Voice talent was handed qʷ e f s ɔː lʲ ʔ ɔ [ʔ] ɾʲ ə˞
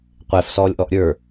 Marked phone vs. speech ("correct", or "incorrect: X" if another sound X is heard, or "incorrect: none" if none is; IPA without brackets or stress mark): correct